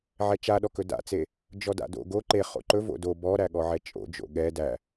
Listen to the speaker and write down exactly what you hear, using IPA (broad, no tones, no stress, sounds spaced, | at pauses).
ʕ ɛ t͡ʃ a ɗ ɔ k ɵ d a̰ t͡s e | d͡ʒ ɔ d a̰ d o̰ ɡ o ǃ e χ o̰ ǃ ɵ v o̰ d o b ɔ ɾ æ ɠ ɔ ʕ ɛ t͡ʃʼ o̰ d͡ʒ o̰ ɠ ɛ d æ